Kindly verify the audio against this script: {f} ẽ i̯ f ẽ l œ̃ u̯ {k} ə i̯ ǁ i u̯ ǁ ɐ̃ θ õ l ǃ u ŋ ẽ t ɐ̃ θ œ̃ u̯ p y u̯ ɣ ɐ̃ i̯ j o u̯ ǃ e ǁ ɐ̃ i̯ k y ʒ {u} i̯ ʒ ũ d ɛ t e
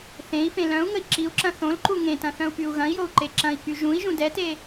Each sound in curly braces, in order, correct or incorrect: incorrect: θ, incorrect: ŋ, incorrect: ũ

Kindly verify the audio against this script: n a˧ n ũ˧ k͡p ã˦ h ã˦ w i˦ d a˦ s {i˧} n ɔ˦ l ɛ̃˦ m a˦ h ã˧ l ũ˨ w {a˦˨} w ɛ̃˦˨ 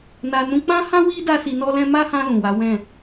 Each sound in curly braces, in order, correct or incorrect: correct, incorrect: a˨˦

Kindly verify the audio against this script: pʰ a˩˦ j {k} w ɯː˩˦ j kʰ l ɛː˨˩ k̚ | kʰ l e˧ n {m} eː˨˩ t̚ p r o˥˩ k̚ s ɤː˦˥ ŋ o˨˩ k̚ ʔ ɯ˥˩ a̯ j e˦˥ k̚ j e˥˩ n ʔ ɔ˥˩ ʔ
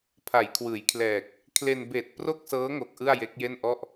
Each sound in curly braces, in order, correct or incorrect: incorrect: kʰ, incorrect: b

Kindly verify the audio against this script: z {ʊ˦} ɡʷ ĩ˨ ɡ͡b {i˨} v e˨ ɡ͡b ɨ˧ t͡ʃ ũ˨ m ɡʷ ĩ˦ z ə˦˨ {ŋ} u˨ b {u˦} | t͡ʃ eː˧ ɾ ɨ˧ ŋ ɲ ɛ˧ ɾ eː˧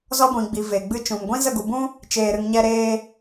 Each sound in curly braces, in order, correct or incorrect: incorrect: ɔ˦, correct, incorrect: ɡ, incorrect: ũ˦

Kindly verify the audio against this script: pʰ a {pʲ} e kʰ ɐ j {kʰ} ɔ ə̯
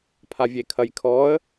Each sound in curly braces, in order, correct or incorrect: incorrect: vʲ, correct

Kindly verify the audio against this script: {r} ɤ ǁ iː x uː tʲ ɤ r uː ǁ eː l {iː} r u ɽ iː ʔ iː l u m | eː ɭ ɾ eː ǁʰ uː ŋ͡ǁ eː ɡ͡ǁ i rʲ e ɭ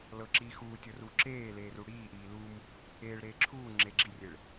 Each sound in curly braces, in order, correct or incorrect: incorrect: l, incorrect: eː

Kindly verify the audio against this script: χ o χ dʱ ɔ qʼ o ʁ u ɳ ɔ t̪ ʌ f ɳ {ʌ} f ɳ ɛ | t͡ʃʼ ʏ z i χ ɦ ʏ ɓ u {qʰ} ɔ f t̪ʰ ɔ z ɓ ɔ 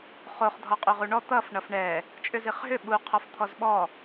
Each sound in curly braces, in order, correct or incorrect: correct, correct

